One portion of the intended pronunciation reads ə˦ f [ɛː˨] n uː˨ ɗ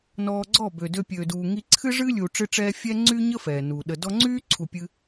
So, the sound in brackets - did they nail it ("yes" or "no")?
yes